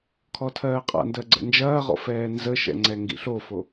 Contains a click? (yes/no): yes